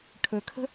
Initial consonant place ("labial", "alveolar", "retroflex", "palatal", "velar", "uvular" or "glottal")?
retroflex